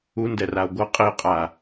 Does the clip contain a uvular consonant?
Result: yes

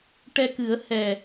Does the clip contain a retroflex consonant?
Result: yes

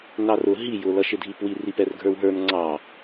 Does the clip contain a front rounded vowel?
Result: no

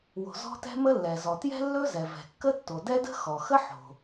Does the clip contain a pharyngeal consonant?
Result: yes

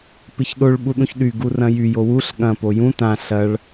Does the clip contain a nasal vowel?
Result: yes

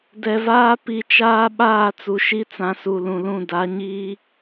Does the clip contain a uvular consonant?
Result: no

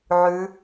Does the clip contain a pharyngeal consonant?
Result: yes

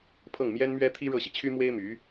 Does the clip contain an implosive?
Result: no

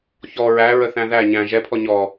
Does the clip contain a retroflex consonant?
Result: no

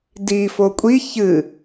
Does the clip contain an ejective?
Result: yes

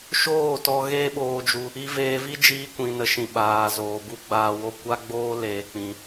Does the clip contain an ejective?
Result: no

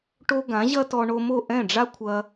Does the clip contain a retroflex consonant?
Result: yes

